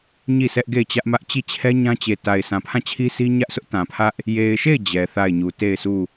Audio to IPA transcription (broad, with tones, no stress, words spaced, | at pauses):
ɲi˦˨sɛ˦ʔɡe˦˨ɪ̯ t͡ɕä˦ʔmä˦ʔ t͡ɕi˦˨t͡ɕʰɛ˦ ɲã˦t͡ɕe˨ta˨ɪ̯ sʰã˨pʰã˦˨t͡ɕʰi˦si˦ ɲä˦ʔsʊ˦ʔtã˨ pʰä˦ʔ | je˨ɪ̯ʃe˦˨ɪ̯ d͡ʑɛ˨θa˦˨ɪ̯ɲu˨ te˦˨ɪ̯su˦˨